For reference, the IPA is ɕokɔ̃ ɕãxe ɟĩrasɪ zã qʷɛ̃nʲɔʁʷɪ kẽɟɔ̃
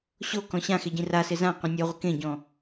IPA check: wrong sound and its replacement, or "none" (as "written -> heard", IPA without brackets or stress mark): none